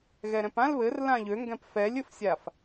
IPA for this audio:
ɣ ɛ ɾ ɛ̃ p ã l β ɘ r l ã ʎ ø ŋ ɡ ɛ̃ p f ɛ lʲ ɘ f sʲ a f

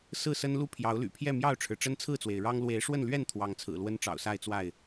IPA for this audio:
s ɹ̩˥˨ s ə˦ n l u˥˨ pʰ j ɑ˨˦ ʊ̯ l y̰˨˩ pʰ j ɛ˥˨ m j ɑ˥˨ ʊ̯ ʈ͡ʂʰ ɻ̩˩ ʈ͡ʂ ə˦ n t͡sʰ ɹ̩˥˨ t͡s w e˩ ɪ̯ ɻ ɑ˦ ŋ l w e˨˦ ɪ̯ ʂ w ə˥˨ n l ɥ ɛ˥˨ n t̪ʰ w ɑ˨˦ ŋ t͡sʰ ɹ̩˨˩ l w ə˦ n ʈ͡ʂ ɑ̰˨˩ ʊ̯ s a˥˨ ɪ̯ t͡s w a˥˨ ɪ̯

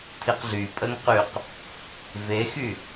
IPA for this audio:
tʰ i q ɮ y pʼ ə ŋ q y q | v e x y

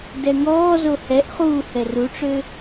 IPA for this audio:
d ɛ ŋ ɔː z o h ɛ ʔ χ uː h ɛ r u ʈ͡ʂ ø

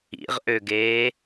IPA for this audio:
ḭ ʁ ʔ ø ɡ eː

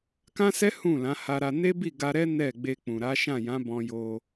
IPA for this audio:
k ã˦ s ɛ˦ h ũ˦˨ l ã˨˦ h a˧ ɾ a˧ n e˦ b i˦˨ ɡ a˧ ɾ ɛ˦ n ɛ˦˨ ɡ͡b e˧ k͡p ũ˨ ɾ a˨˦ ʃ ã˦˨ j ã˨˦ b ɔ̃˧ j o˧

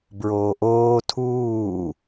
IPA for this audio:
b ɹ oː ʔ oː tʰ uː

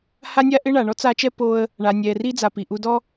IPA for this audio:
h a˥ nʲ a˥ ʔ ɪ˥ ɳ a˨ ɳ ɔ˥ t͡s a˦ t͡ʃ ɛ˥ p o˦ ə̯ | ɳ a˨ nʲ ɛ˨ r i˥ d͡z a˨ p i˩ ʔ u˦ d ɔ˥

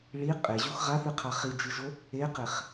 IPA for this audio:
ɭ i qʼ e ʑ u x ʁ a θ ɨ qʰ a χ i d͡ʒ ɨ ʒ o | e q e χ

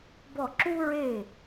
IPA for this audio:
b ɔ˥˩ ǁ u˥ ɹ e˥˩

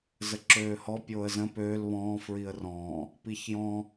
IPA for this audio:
z ə ǁ øː h ɔ pʲ oː ə̯ z ə̃ p øː l β ɔ̃ː f ɹ i ə̯ r ɔ̃ː | p i ç j ɔ̃

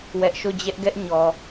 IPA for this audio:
w ɛ˦ ʔ ʃ o˦˨ d͡ʑ ɛ˦ ʔ ɡ ɛ˦ ʔ ɲ ɔ˨

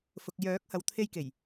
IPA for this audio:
f ʊ˨ k̚ j œː˨˥ k̚ h ɐ˨˧ w t̪ʰ e˧ j k e˨˩ j

